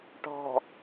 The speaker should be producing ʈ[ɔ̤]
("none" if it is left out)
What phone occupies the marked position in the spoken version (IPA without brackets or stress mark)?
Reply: ɔ̤